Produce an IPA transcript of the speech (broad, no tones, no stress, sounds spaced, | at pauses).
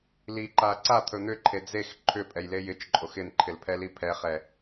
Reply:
l i ǃ a ǀ a t̪ʰ ɵ n̪ ʏ ǃʰ e d͡z e x ǃʰ ʏ pʼ ɛ j l e j ɪ t͡ʃ ǃʼ o x ɪ n ǃʰ ɪ l pʰ ɛ l i pʰ ɛ χ ɛ